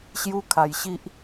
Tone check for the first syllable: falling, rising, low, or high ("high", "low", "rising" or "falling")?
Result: high